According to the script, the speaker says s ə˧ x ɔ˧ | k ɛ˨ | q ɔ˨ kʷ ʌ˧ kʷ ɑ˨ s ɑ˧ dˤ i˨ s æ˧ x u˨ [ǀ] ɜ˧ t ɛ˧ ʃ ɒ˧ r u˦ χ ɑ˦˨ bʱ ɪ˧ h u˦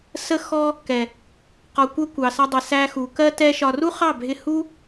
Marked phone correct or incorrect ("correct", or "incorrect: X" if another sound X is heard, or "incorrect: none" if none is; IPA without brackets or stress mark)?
incorrect: k